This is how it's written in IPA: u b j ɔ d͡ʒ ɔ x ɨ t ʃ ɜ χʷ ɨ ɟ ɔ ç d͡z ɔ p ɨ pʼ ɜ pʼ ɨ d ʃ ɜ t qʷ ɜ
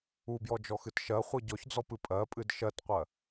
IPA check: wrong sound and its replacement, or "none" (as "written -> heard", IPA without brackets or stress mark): none